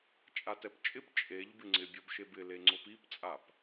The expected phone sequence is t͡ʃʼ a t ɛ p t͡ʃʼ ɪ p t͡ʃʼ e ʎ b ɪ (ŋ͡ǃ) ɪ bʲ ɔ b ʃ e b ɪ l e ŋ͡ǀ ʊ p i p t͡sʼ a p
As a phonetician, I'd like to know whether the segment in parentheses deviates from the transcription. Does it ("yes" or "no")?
yes